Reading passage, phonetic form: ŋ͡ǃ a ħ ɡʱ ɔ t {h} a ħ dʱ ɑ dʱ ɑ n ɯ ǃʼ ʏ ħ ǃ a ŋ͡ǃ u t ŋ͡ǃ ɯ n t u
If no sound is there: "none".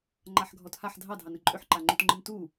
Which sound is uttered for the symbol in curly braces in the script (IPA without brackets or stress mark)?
h